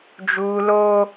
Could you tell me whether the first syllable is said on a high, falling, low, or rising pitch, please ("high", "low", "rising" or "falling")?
high